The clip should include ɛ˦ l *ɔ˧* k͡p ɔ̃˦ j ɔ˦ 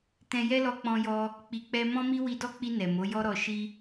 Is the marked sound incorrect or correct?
correct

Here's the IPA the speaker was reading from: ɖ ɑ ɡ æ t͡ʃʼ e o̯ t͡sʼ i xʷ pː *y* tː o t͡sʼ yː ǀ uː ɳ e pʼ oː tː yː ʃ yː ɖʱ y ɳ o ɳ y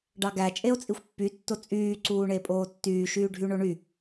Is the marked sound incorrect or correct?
correct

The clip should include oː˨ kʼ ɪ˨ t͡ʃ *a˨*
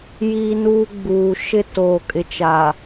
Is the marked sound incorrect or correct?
correct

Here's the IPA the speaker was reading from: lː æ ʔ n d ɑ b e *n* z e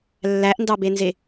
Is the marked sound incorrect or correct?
correct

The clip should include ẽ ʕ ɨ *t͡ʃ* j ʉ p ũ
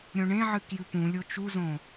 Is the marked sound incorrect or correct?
incorrect: k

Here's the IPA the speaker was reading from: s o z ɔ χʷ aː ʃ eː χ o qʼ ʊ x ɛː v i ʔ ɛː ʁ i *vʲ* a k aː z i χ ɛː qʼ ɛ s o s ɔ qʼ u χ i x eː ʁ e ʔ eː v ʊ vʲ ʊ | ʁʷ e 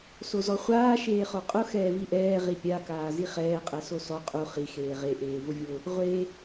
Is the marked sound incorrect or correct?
incorrect: pʲ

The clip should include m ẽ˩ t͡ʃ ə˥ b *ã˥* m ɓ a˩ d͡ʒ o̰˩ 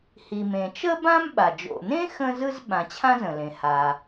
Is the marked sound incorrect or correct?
correct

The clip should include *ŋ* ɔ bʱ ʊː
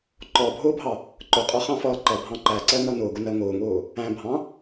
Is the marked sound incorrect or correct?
incorrect: ǃ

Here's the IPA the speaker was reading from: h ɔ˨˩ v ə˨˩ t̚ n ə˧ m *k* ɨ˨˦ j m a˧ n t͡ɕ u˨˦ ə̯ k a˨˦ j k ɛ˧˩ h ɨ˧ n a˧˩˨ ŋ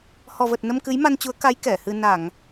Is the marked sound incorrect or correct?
correct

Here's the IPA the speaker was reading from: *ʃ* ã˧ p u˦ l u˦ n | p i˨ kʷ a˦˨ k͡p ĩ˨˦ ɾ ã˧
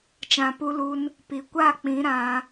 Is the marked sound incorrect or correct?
incorrect: t͡ʃ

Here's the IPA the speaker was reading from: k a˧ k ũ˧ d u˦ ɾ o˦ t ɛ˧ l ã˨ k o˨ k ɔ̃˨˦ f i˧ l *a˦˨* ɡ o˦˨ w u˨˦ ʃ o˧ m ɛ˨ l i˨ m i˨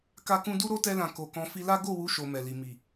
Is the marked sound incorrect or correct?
incorrect: a˦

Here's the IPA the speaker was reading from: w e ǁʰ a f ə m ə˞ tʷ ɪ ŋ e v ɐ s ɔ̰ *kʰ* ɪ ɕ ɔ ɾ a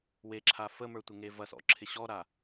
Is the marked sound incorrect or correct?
incorrect: ǁʰ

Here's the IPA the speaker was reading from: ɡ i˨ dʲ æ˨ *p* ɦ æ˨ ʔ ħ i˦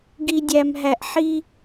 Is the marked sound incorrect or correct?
incorrect: m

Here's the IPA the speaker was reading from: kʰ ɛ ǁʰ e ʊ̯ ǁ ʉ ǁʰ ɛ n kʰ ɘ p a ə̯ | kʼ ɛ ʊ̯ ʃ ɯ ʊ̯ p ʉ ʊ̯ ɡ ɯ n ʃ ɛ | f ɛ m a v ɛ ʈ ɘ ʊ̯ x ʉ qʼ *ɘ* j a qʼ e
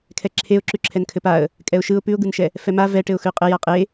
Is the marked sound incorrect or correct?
correct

